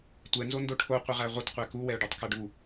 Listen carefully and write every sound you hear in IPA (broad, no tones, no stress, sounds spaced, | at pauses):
tʷ ɛ n z o n d o ʈʰ o qʷ ə ʁ æ ʁʷ ʌ t qʷ æ k u w ɛ ʊ̯ ɖ o tˤ k ʌ ɖ u